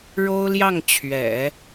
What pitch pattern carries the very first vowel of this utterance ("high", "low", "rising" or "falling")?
high